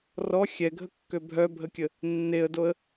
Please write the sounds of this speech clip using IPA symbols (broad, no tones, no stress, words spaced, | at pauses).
rɔ xʲɛɡʱəkːø bʱœbʱəkʲə | nːeə̯doə̯